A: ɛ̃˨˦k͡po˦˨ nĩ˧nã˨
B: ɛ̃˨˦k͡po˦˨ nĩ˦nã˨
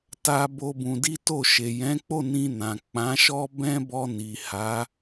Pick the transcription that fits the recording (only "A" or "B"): A